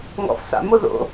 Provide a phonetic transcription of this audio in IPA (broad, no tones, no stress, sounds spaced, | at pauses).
ŋ ɔ̰ f s a̰ m o ð o̰